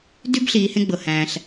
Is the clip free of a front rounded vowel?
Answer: no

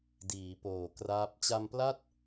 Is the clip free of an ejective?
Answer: yes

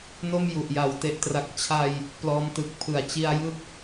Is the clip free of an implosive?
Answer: yes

